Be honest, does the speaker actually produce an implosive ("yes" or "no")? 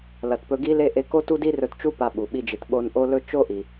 yes